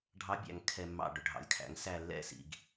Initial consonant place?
retroflex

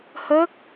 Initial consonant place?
glottal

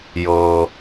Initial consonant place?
palatal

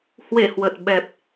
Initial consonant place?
glottal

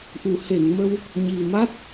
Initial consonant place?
glottal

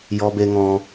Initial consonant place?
palatal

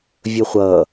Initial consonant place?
labial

